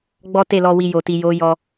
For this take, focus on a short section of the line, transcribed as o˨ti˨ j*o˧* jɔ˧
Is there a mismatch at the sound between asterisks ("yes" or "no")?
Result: yes